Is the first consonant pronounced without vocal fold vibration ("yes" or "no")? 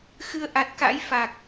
yes